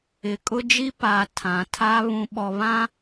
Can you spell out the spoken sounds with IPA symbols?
ɪ˨ kʼ ʊ˦ d͡ʒ i˦ p a˨ tʰ ã˨ tʰ a˦ β ũ˨ ɓ ɔ˨ β ã˦

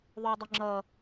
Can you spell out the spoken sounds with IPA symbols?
ðˤ ʊː dˤ ʊ ŋ͡ǁ ʌ

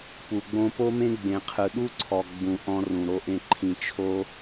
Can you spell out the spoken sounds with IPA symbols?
p u˨ ɡ͡b õ˧ p o˦ m ẽ˦ ɡ͡b ẽ˨ qʰ ɯ˨ ɗ u˦ ǀʰ ɔ˨ ɡ͡b ũ˨ ʔ ɔ̃˧ r ũ˨ ɾ o˧ ʔ ẽ˧ ǃʰ ĩ˨ t͡ʃʰ o˧

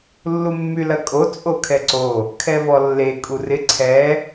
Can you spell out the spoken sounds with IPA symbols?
lː u mː y l ɐ kʼ o t͡sʼ o kʰ ɛ ǀ o | kʰ ɛ v ɔ lː e kʼ u r ɪ ǀʰ ɛ

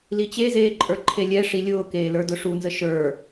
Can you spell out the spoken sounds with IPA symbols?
l i t͡ɕ e z eː ǃʼ ə˞ ǃʰ e lʲ ɛ ʂ i lʲ ʊː k eː l ə˞ d ʊ ʂ u n z ə ʃ ə˞

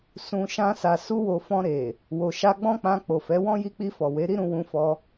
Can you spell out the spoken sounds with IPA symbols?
s ũ˧ ʃ ã˦ s a˧ s u˦ w o˧ f ɔ̃˧ ɾ e˨ | w o˧ ʃ a˦ ɡ͡b ɔ̃˦ k͡p ã˧ k͡p o˨ f ɛ˨˦ w ɔ̃˦ j i˧ k͡p i˧ f ɔ˨ w e˨˦ ɾ i˦ ɾ ũ˧ w ũ˧ f ɔ˧

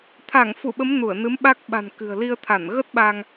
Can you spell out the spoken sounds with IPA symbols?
t̪ʰ aː˧˩ ŋ f u˧˩ ɓ ə˨˦ m n u˧˩ ə̯ n ɨ˨˦ m ɓ a˦˥ k̚ ɓ a̤˨˩ n k ɨ̤˨˩ ə̯ l i˧ ə̯ t̪ʰ a˧˩ n ɣ ə˦˥ t̚ ɓ a˧ ŋ

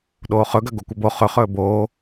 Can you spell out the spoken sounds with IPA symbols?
ɗ oː χ ɵ ɡ ɐ ɡ o kʷ ɐ b o χ ɵ χ ɵː b oː

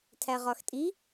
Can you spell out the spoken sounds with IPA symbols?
tʰ æ ʁ ɒ x tʼ i

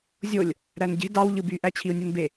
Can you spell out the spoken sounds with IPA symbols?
zʲ o lʲ | ɾ æ n ɟ e̤ d ɑ w ʎ ɯ b y ʔ æ t͡ɕʰ i u̯ nʲ u n b e

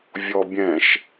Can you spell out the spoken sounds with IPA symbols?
vʲ ɔ bʲ ɛ̃ ʃ

